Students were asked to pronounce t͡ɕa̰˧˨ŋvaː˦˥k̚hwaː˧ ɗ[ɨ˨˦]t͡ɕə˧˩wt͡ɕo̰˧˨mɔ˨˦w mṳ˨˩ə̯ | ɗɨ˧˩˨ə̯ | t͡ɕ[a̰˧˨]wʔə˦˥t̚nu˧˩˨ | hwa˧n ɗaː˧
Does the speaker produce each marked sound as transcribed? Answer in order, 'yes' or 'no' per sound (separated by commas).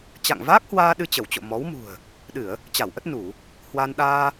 no, no